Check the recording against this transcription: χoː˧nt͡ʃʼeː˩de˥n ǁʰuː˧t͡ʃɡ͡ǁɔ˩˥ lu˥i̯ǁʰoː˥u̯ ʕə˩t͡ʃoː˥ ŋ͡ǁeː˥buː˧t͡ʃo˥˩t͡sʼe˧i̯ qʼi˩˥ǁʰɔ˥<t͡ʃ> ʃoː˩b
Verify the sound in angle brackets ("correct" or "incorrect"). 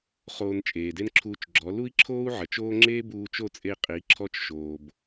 correct